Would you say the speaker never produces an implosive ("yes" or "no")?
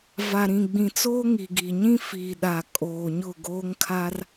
no